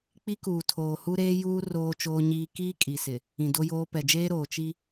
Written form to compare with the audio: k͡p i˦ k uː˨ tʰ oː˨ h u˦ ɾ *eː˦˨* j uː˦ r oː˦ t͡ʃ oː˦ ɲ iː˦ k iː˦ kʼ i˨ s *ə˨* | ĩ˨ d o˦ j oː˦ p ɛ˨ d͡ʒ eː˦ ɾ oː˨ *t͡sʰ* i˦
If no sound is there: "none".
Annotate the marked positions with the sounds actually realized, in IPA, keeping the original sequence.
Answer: eː˦, ɪ˨, t͡ʃ

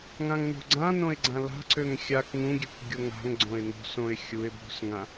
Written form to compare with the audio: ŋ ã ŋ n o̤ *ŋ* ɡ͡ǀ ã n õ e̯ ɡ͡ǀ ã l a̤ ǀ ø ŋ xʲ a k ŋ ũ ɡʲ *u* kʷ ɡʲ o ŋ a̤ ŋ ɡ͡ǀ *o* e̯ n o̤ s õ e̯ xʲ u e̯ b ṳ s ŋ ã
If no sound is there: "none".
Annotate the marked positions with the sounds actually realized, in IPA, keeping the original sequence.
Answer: none, ø, õ

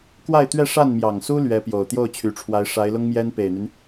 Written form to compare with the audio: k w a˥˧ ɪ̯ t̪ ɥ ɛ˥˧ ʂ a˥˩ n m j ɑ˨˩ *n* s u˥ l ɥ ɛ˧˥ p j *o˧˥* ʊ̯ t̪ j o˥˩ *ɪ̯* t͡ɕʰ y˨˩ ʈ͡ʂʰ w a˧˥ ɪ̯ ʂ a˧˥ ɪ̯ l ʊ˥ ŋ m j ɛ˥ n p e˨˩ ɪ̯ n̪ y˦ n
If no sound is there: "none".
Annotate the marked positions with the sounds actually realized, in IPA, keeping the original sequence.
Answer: ŋ, o˨˩, ʊ̯

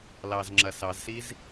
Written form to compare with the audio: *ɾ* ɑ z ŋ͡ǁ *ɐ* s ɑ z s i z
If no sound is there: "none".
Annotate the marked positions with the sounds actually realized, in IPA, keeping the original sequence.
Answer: l, ɐ

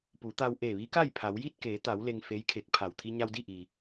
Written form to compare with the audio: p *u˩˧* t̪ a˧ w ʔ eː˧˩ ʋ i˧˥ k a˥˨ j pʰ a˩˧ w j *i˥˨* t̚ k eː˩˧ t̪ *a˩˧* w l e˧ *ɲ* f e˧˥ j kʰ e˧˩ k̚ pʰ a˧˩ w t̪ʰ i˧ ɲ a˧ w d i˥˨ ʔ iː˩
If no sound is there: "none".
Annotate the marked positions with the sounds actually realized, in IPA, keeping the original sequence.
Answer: u˩˧, i˥˨, a˩˧, ŋ

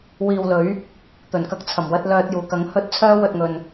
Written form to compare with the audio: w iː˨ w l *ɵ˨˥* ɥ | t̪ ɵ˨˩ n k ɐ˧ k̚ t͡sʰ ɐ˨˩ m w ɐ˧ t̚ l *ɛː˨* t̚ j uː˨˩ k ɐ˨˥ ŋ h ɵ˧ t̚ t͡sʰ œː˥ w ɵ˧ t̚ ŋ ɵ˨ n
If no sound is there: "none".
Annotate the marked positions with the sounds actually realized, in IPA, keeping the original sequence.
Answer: ɵ˨˥, œː˨

